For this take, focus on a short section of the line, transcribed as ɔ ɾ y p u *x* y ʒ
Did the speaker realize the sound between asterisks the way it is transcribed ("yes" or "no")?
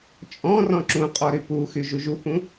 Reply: yes